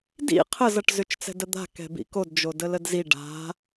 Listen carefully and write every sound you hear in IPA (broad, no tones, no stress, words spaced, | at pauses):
dḭ qʰəzʌʈ zʏt͡ʃt͡sɛ̤dəd̪a̤ kɛ̤bḭkod d͡ʒodələdzi ɖa̤